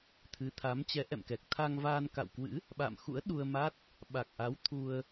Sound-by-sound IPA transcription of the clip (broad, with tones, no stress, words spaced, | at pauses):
t̪ʰɨ˨˦t̪ʰa˨˦mt͡ɕɛ˨˦ ʔɛ̰˧˨mkɛ˨˩k̚t̪ʰa˧ŋvaː˧n ka̰˧˨wkwɨ̰˧˥ | ɓa̰˧˨mxṵ˧˥ə̯ ɗu˧ə̯ma˦˥t̚ | ɓa˨˩k̚ʔa˨˦w t̪ʰu˧ə̯